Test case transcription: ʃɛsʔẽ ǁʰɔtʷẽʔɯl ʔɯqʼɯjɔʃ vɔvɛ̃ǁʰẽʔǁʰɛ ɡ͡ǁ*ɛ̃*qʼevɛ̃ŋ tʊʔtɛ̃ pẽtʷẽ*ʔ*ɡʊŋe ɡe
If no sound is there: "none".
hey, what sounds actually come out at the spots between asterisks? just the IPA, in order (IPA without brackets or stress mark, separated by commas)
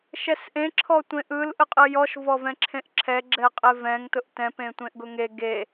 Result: ɛ, ʔ